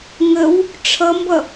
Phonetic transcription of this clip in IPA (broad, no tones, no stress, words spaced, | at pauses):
ŋəw | ʈ͡ʂʰʌmbʌ